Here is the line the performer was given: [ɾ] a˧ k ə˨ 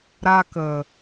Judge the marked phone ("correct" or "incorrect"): correct